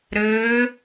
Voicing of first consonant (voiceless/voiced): voiced